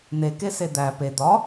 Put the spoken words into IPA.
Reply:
n̪ e k e s e d̪ æ p e d̪ ɒ

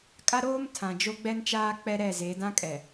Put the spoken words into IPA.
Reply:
kʼ a˦ ɾ oː˦ m tʰ ã˨ d͡ʒ o˦ ɡ͡b ɛ˦ n t͡ʃ aː˦ k͡p ɛ˦ ɾ ɛ˦˨ z e˨˦ d ã˦ kʼ ɛ˨

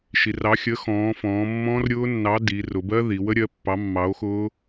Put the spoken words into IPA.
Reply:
ʃ i˩˧ r ɑ˨˥ xʲ ə˨˥ x ɔ̃ː˩˧ f ɔ̃ː˩˧ mː ɔ̃ː˦˥ r ɾʲ ʊː˦˥ nː ɑ˨˥ d i˩˧ r ʊ˩˧ b ɜ˦˥ ð i˩˧ w ə˦˥ ɾʲ ɜ˨˥ pː ɑ˨˥ mː ɑ˨˥ o̯ x ʊː˦˥

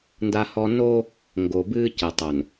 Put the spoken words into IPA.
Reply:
n d a˦ h ɔ˦ n o˦ | ŋ ɡ o˨ b ɨː˦ c ɘ˨ tˤ o˨ n

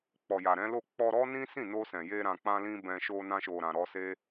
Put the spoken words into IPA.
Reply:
k͡p ɔ˨ j a˨ ɾ ɛ̃˨˦ l o˦˨ k͡p ɔ˧ ɾ ɔ˦ n ĩ˦ s ĩ˦˨ n o˧ s ɛ̃˨ j e˧ ɾ ã˨ k͡p ã˧ l ĩ˧ b ɛ̃˧ ʃ o˧ n ã˧ ʃ o˨ ɾ ã˨ ɾ ɔ˧ s e˦

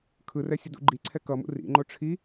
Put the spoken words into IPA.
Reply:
kʰ ɯ r ɛ sʲ ʌ d ṵ ɡ͡ǃ i ǀʰ ɛ k ʌ m ṵ r ḭ ŋ͡ǃ o ʈ͡ʂʰ i

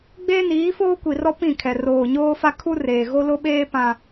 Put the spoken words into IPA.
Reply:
ɡ͡b eː˦ n iː˨˦ f oː˦ kʷ i˨ r ɔ˦ p ĩ˦˨ kʰ ɛ˨ r oː˨ ɲ oː˦ f a˦ kʰ u˦ r eː˨ ɣ o˦ l o˦ ɓ eː˦ p ã˦

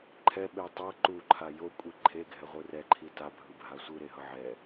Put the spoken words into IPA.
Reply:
ǃʰ ɛ ɓ e tˤ ʌ ǃ u ǃʰ a j o kʷʼ i ǃʰ e ɡʱ ɛ ʁʷ ɯ r ɛ ǃʰ i t a bʱ ɯ bʱ a sʷ ɯ ɾ e ɦ ʌ ʕ ɛ

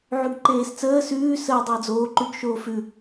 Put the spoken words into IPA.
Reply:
ʕ ʉ ɡ ǃ eː s t͡s əː s ʉː s əː dˤ əː d͡z oː ǃ ʉ ɡ ʃ oː f ʉ

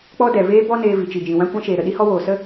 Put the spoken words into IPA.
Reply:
k͡p ɔ˦ d ɛ˨ v eː˦ b ɔ˦ n eː˧ v i˨ t͡ʃ i˨ d͡ʒ ĩ˨ w ã˦ kʷ ã˦ ʃ eː˨ ɾ ə˨ ɗ i˦ h ɔ˦ w oː˨ s ə˦

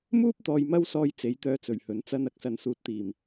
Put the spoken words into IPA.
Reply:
m uː˥ p̚ t̪ ɔː˨ j m ɐ˥ w s ɔː˧ j t͡s e˨˥ j t̪ œː˧ t͡s ɵ˨˩ ɥ h ɵ˨˥ n t͡s ɐ˧ n ɐ˨ k̚ s ɐ˨ n s uː˨˥ t̚ t̪ iː˨˩ m

